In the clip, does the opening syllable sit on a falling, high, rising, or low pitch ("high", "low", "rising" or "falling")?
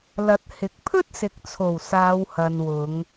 rising